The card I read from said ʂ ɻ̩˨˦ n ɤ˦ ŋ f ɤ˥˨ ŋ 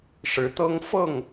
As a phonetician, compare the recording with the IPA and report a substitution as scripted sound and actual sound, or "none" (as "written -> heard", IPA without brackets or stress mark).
n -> t̪